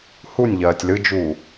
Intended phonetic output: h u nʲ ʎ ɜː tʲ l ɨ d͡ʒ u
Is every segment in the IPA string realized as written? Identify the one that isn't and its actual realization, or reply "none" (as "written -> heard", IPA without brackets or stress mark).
none